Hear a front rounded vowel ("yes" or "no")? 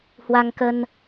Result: no